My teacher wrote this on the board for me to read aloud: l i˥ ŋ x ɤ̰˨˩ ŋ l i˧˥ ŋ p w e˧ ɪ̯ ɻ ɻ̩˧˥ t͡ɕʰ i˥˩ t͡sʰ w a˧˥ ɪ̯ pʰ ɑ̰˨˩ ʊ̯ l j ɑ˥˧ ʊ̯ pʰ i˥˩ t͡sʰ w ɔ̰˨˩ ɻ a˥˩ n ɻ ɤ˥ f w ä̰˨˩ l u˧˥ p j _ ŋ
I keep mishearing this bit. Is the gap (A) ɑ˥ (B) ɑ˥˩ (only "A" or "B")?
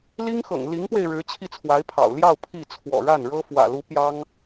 A